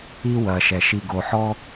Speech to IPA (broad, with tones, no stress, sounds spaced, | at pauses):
i˥ w ɐ˨ ʃ ɛ˩ ʃ i˨ ɡ o˨ ħ ɔ˥